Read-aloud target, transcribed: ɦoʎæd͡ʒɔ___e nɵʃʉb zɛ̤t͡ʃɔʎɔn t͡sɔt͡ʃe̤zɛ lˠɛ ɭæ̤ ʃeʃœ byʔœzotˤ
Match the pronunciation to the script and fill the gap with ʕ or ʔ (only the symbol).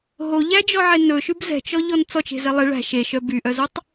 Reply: ʕ